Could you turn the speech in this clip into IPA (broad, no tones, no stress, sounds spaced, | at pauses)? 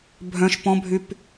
bʱ œ̃ ʃ p ɔ̃ bʱ y p